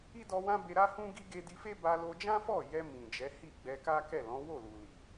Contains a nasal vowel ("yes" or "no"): yes